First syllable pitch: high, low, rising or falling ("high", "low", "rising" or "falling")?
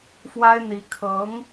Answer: high